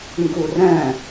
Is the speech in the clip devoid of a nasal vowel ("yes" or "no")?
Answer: no